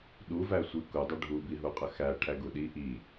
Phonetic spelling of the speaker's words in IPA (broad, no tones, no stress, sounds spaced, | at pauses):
ɗ u v æ sʷ i k u dˤ ə ɖʱ u b i ɦ u qʼ ə x æ ʈʰ æ ɡ u ɗ i ʔ i